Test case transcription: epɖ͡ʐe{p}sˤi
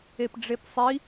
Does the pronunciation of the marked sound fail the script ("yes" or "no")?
no